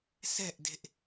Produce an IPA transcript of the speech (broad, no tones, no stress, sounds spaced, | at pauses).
s ɛ ʔ d e̤ ʔ